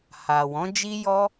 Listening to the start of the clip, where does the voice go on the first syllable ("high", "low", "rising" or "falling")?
low